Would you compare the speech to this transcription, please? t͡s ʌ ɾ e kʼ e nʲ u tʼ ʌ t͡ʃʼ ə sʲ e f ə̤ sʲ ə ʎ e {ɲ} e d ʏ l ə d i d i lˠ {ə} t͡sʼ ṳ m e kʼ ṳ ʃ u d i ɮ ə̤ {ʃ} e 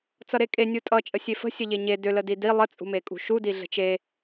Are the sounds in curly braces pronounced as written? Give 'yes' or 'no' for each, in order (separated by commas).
yes, yes, no